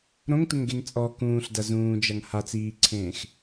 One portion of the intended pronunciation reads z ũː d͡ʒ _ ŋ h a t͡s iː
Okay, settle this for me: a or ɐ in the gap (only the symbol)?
ɐ